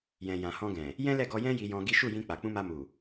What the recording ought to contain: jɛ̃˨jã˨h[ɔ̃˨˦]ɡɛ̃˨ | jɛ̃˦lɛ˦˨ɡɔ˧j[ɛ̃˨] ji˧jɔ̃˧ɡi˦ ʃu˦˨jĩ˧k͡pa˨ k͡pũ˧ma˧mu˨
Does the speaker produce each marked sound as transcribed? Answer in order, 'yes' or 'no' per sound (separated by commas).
no, no